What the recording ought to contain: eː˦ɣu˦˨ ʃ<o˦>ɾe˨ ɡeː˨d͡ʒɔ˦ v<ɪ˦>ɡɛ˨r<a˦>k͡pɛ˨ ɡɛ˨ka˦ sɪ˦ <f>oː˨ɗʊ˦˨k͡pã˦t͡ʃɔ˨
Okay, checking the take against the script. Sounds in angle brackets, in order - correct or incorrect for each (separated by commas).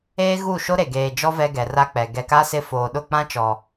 correct, incorrect, correct, correct